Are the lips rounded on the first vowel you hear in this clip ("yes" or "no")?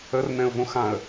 no